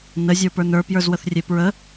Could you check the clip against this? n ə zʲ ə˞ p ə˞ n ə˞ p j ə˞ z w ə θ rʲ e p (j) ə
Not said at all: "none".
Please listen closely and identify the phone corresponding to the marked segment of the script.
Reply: ɹ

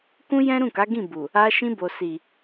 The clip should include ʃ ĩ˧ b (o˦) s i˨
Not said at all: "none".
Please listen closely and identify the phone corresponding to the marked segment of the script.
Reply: o˨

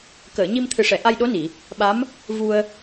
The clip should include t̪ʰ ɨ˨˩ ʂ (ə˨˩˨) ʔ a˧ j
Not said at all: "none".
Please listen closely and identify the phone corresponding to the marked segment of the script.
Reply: ɛ˨˩˨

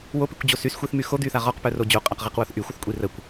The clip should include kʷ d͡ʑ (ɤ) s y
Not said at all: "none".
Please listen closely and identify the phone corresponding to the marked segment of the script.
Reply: o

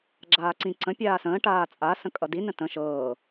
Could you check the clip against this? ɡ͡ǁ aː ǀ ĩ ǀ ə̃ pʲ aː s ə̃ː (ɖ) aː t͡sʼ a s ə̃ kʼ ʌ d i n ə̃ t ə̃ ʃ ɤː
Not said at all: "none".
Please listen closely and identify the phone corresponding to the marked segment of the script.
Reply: ʈ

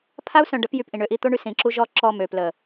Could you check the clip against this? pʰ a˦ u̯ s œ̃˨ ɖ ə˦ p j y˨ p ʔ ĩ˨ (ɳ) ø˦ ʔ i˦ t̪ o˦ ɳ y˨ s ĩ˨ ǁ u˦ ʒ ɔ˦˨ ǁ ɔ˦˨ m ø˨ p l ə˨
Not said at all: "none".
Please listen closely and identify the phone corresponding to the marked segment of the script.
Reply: ɳ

